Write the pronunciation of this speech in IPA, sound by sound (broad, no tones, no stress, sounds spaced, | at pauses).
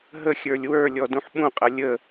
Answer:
ɦ ə xʲ ə˞ lʲ w ə˞ lʲ ɔ d ũ ħ ɓ ũ qʼ ɐ lʲ ə